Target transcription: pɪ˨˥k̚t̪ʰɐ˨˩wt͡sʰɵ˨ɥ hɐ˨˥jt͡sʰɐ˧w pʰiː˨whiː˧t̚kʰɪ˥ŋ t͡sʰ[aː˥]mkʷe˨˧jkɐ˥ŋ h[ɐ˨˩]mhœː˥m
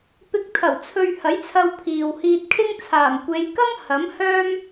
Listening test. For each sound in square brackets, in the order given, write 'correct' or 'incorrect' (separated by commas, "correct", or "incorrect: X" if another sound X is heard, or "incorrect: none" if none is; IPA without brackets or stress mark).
incorrect: aː˨˩, incorrect: ɐ˨˥